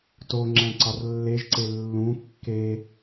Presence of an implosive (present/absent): absent